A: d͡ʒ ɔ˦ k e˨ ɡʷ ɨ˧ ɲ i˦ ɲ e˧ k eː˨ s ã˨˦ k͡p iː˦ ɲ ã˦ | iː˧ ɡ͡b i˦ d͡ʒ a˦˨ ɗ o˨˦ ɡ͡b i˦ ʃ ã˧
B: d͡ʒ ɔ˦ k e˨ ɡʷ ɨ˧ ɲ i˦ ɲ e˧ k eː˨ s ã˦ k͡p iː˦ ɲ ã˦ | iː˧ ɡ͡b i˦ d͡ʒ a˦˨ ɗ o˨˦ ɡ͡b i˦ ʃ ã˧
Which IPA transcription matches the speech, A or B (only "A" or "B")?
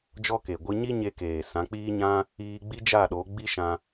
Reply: A